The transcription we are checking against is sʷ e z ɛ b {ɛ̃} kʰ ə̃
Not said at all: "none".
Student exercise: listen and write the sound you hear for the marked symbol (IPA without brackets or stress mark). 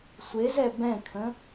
ɛ̃